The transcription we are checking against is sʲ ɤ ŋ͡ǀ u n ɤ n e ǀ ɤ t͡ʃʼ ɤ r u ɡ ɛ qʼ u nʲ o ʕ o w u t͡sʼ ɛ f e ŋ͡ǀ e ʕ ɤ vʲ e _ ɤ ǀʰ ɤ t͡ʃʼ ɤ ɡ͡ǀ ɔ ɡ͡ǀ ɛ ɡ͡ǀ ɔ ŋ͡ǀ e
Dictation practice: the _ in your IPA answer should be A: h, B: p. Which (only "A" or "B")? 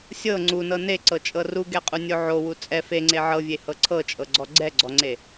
A